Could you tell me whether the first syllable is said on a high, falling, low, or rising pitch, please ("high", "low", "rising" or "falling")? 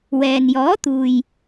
low